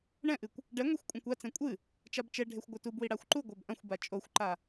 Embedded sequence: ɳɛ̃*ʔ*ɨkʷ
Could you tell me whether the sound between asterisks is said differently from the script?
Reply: no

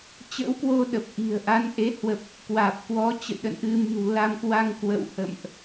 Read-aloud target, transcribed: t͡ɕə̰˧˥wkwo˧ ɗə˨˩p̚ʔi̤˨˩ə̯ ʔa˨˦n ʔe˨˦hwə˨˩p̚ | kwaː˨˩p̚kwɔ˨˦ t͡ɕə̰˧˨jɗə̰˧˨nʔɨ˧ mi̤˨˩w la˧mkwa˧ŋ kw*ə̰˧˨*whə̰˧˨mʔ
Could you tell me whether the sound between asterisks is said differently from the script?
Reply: no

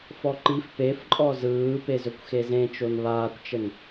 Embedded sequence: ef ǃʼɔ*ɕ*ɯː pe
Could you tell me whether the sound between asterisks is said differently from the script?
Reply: yes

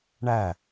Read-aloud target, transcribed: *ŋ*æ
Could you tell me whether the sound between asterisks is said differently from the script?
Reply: yes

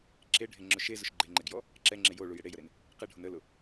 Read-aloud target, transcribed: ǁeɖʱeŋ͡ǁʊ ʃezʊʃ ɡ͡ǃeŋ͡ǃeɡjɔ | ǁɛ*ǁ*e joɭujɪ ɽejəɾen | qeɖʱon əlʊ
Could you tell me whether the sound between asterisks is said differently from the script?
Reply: yes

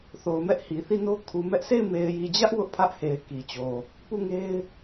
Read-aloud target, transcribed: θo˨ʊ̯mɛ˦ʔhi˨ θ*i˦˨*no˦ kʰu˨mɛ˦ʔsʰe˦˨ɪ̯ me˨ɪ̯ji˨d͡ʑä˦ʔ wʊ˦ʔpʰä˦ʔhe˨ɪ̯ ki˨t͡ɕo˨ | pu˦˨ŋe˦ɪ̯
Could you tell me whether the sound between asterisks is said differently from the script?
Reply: no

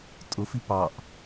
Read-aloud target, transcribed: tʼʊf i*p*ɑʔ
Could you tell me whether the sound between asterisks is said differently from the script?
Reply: no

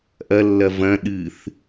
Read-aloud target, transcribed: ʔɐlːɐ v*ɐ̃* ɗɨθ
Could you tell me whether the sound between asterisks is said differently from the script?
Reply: no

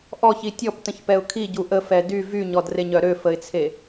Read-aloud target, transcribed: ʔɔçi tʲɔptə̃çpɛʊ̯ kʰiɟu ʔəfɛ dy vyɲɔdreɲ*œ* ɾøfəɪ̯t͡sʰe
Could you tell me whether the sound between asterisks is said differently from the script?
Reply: no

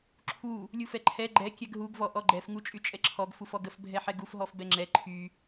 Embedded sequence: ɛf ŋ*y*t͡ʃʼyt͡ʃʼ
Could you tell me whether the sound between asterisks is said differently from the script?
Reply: yes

